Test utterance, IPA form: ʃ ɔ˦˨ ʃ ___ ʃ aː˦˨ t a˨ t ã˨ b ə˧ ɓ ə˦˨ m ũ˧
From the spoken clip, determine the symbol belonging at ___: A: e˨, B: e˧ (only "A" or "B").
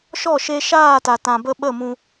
B